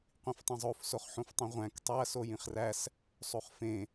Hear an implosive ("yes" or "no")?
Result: no